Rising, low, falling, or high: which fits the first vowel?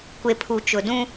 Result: low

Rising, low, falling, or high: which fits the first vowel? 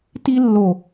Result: high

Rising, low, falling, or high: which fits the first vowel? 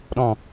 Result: low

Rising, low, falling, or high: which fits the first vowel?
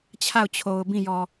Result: falling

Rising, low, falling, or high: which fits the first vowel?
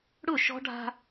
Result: falling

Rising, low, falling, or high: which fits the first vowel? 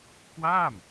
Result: falling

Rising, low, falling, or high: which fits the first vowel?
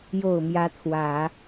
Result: low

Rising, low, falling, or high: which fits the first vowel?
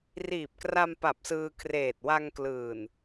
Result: low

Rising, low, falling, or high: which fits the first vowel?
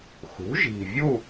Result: rising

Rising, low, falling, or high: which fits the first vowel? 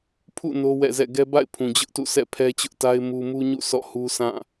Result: falling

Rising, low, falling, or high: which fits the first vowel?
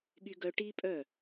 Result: high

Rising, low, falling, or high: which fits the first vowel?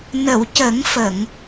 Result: low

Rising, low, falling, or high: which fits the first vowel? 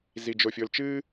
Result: low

